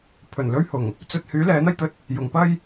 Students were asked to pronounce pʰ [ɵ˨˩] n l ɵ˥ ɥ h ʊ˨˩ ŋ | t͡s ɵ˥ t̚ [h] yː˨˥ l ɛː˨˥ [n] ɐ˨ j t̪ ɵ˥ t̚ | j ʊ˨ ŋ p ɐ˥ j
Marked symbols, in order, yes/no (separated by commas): yes, yes, yes